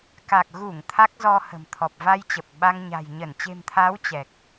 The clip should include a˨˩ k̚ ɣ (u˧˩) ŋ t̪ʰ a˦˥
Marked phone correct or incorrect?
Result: correct